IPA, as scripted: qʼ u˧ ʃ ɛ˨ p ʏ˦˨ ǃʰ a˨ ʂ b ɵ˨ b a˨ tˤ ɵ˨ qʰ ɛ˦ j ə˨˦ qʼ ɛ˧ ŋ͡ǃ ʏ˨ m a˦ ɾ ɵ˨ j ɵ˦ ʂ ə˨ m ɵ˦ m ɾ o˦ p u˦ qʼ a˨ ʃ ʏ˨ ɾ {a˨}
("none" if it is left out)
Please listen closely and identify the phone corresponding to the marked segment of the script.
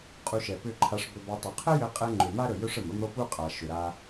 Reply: a˧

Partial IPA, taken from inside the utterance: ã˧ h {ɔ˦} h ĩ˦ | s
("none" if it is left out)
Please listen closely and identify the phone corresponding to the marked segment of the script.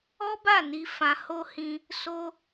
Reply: o˦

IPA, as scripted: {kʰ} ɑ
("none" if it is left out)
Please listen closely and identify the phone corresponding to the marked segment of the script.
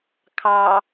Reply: kʰ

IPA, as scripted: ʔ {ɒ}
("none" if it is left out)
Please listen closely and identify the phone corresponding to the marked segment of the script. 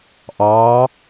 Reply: ɑ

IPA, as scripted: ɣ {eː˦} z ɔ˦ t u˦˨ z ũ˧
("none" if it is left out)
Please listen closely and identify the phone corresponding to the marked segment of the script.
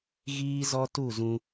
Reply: iː˦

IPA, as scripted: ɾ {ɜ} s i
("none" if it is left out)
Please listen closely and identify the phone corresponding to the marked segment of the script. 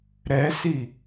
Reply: ɛ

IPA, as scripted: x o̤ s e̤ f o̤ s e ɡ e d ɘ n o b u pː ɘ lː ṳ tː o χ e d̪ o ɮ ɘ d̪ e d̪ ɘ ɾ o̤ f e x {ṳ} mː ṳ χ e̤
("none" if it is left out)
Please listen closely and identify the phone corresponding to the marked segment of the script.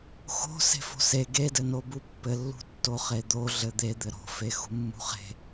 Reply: ṳ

